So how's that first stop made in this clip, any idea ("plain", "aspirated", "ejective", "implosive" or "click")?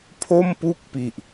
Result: aspirated